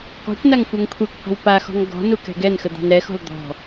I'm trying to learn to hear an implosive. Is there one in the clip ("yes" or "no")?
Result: no